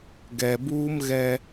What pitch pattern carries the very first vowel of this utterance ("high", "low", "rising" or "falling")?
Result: low